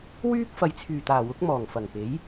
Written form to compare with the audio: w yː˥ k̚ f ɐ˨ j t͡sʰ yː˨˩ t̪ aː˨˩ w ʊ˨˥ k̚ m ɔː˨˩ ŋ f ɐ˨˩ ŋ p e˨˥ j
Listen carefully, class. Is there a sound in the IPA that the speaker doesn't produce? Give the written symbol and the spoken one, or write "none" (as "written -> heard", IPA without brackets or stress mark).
none